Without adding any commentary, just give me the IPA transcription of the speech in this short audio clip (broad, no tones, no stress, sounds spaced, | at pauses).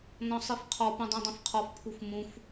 n ɔ̃ sˤ i f qʰ ɔ p ũ dˤ ũ dˤ ĩ f qʰ ɔ f pʰ u f m ũ f